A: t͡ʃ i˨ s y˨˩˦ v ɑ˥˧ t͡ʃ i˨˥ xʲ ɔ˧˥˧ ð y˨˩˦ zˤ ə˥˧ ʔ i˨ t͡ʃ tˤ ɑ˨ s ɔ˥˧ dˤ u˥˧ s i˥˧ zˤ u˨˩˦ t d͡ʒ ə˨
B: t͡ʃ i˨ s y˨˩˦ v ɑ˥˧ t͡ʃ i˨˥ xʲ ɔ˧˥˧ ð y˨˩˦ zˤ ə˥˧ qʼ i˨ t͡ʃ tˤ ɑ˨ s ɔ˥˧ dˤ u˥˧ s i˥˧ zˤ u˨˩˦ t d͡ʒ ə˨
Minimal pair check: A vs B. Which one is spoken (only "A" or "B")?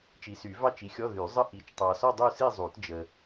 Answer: A